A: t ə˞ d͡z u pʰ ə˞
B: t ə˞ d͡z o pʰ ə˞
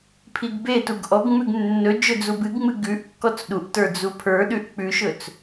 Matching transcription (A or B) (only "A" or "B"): A